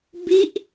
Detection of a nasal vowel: absent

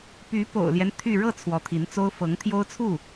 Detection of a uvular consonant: absent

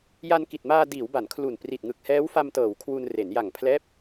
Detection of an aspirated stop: present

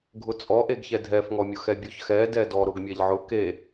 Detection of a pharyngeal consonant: present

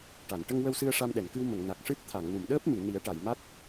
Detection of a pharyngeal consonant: absent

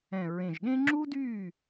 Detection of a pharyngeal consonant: absent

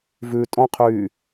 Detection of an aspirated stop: present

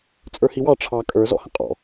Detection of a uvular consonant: present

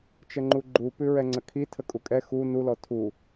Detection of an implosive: absent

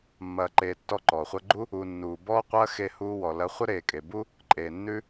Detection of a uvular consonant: present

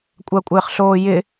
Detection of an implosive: absent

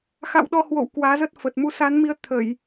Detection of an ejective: absent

